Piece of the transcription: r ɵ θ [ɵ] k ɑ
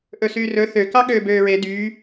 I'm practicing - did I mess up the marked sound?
yes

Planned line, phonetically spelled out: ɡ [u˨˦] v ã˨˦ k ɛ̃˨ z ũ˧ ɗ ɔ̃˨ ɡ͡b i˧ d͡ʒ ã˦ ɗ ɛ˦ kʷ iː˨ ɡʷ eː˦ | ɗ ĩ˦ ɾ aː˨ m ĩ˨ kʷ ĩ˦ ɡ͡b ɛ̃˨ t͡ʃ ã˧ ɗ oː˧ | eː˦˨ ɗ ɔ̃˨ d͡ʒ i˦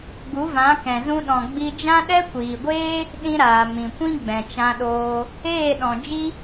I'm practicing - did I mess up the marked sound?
no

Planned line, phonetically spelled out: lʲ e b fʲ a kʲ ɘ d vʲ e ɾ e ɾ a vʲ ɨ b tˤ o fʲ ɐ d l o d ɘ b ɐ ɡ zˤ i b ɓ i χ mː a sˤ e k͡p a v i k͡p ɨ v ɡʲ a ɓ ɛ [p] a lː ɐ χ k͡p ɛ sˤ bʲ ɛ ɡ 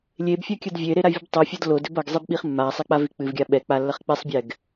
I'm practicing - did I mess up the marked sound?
yes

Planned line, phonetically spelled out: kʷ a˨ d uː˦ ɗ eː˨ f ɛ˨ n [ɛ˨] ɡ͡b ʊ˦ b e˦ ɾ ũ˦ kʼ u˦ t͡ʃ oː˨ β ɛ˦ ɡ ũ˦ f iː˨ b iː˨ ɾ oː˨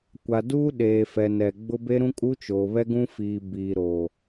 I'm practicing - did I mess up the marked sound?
no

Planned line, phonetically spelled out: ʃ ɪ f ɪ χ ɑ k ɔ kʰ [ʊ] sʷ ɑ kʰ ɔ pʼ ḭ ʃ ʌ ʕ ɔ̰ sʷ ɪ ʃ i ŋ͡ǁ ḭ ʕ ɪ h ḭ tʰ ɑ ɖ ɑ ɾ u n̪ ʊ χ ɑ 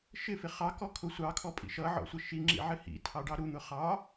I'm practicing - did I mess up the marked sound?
no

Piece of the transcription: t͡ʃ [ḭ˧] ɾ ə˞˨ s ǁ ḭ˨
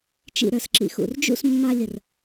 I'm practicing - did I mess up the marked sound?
no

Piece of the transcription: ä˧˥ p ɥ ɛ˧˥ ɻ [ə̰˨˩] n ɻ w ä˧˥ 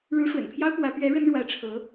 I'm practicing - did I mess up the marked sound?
yes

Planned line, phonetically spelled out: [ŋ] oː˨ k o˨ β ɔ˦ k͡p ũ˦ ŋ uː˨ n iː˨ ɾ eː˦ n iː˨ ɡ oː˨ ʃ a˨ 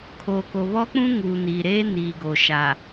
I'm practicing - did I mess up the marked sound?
yes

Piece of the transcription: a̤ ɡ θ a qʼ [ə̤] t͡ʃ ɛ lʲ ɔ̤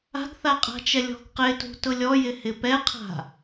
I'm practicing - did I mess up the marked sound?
yes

